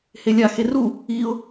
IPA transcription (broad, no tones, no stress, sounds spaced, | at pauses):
h e lʲ a x e r u | i ʊ̯